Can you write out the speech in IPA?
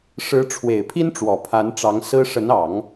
ʂ ɻ̩˧˥ ʈ͡ʂʰ w e˨˩ ɪ̯ pʰ i˥ n ʈ͡ʂ w ɔ˨˩ pʰ a˧˥ n ʈ͡ʂ ɑ˧˥ ŋ s ɹ̩˥ ʂ ə˧˥ n ɑ˨˩˦ ŋ

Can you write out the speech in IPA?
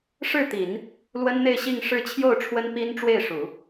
ʂ ɻ̩˥˩ t̪ i˨˩˦ n | l w ə˥ n n̪ e˥˧ ɪ̯ ɕ i˥˧ ŋ ʂ ɻ̩˥˧ t͡ɕʰ j o˥˩ ʊ̯ ʈ͡ʂʰ w ə˥ n p i˥ n ʈ͡ʂ w e˥˩ ɪ̯ ʂ u˨˩˦

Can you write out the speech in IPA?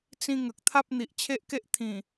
t͡s ĩ˦ ŋ ə˨ k̚ t̪ʰ a˦ p̚ n̪ i˨ ʔ t͡ɕʰ e˦ ʔ k e˦ ʔ t̪ʰ ĩ˨˩

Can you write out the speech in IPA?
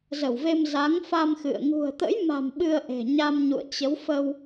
z ə˧˩ w v e˧ m z a˨˦ ŋ f a˧ m x ɨ̰˧˨ ə̯ ŋ ṳ˨˩ ə̯ t̪ ə̰˧˥ j m a̤˨˩ m ɓ ɨ˧ ə̯ ʔ e̤˨˩ ɲ a˧ m ɲ ṵ˧˨ ə̯ t͡ɕ ə˨˦ w f ə˧ w

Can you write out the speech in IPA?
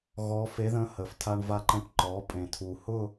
ɣ ɔ˧˥ f e˧˥ ð ə̃˧˥ h ə˨˩ f tʰ a˧ ɳ v a˧ ǃ ə̃˧ ʈ ǃ ɔ˩˥ pʼ ẽ˨˩ tʰ u˨˩ h ʊ˥˧

